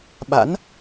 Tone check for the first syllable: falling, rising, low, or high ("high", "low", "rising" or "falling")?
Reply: rising